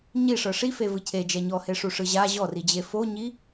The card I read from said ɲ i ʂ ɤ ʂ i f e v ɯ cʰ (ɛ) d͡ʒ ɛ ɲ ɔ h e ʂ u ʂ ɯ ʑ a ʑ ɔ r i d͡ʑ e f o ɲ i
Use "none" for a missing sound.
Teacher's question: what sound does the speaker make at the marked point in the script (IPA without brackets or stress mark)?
e